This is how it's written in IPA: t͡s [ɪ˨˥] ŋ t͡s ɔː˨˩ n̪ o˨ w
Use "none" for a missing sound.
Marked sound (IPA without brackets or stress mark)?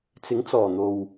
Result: ɪ˨˥